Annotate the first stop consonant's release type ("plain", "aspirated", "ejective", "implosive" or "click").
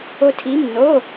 aspirated